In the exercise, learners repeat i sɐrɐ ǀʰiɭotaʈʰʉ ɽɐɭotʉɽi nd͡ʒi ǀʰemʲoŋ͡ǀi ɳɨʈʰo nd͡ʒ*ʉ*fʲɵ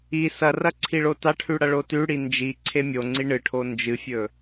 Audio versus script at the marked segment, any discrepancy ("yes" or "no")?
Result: yes